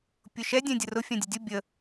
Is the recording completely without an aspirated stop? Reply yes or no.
yes